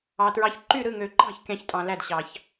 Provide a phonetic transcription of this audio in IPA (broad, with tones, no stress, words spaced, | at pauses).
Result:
ɑ˨tɹɑ˧˥ç ǃy˥˨ɾɯ˥˨ŋø˨ǃɑ̤˥˨ç kʲɑ̃˧˥çtʼɑ̃˨læ˥˨d ɕɑ˨ç